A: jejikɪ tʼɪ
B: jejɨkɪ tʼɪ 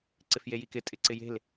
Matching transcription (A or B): A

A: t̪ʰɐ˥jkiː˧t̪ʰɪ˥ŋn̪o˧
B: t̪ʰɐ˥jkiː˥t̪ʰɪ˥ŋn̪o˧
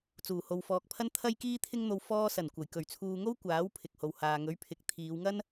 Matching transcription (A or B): B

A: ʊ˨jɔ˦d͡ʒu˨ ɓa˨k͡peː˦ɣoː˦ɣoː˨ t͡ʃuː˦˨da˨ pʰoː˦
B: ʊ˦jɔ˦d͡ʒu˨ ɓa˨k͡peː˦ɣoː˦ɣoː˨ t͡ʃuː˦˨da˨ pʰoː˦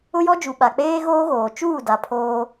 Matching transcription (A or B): B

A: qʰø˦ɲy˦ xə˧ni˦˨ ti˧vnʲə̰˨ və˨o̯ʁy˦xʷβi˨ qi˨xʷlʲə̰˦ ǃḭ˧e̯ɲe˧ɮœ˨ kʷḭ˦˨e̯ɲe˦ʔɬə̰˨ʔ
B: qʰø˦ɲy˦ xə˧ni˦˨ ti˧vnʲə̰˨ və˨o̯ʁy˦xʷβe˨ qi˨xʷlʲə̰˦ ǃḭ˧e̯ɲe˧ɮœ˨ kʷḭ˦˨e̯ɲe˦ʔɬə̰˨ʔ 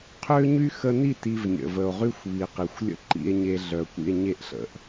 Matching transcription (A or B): A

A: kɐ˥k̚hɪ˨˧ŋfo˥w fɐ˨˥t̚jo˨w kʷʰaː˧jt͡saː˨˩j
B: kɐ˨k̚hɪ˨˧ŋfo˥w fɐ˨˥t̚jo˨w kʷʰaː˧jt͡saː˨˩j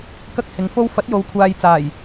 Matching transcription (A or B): A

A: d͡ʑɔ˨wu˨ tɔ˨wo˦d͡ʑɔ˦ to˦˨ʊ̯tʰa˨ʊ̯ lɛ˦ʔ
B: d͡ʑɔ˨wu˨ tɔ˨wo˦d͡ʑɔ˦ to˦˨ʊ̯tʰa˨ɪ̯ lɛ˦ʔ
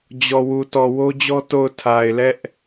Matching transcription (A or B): B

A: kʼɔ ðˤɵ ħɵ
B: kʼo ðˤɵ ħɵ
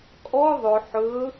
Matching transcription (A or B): A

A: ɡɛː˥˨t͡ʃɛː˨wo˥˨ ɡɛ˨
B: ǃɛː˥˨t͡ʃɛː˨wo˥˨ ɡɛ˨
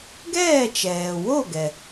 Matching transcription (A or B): A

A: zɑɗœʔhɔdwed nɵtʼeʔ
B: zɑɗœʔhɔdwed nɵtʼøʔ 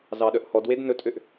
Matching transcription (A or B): B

